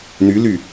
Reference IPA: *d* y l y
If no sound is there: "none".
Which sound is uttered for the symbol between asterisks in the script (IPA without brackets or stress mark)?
n